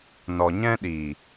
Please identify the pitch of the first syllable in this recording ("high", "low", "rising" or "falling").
low